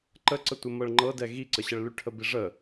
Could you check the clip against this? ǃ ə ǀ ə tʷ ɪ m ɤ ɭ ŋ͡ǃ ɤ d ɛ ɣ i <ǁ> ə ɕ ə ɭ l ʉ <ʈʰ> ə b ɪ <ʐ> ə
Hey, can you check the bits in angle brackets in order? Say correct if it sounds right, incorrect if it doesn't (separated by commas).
incorrect, correct, correct